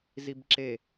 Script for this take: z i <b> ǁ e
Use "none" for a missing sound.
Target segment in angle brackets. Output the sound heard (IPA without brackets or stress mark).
b